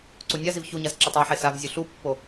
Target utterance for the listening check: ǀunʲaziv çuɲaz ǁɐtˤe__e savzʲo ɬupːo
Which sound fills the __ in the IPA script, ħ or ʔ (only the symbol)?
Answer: ħ